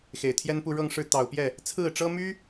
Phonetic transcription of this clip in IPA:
x e˨˩ ɪ̯ t̪ʰ j ɛ˥ n p u˥˧ ɻ ɤ˥˧ ŋ ʂ ɻ̩˥˩ t̪ ɑ˨˩ ʊ̯ p j ɛ˥˩ | t͡sʰ ɹ̩˥˩ ʈ͡ʂ ɤ˥ m y˥

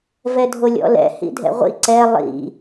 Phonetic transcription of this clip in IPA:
v ɛ dʱ o lʲ ɔ̰ l ɛ̰ h ḭ dʱ ɛ̰ ʁʷ ḭ ǀ ɛ lˠ ḭ

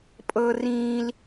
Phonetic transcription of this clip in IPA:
pʼ ɤ˦ r ĩː˦ l

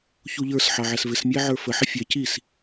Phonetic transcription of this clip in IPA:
ç u ʎ ə˞ s ħ ɑ ʕ æ s v ɪ s mʲ æ ʕ ə˞ f ə ħ ɪ fʲ ɛ c i s

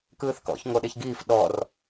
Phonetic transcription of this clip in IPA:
k ɯː θ k ɔ̰ ç ŋ o ɗ e ç ɡ iː f ɗ ɔ r

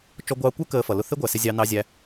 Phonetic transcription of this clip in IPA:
t͡ʃ ɔ˧ ɡʷ ɑː˧ kʷ ə˞˦ k əː˧ f ʌ˨ l ʊ˧ θ ɪ˦ ɡʷ æ˨ s ɪ˧ zʲ ɑ˦ n ɑ˦ zʲ æ˦

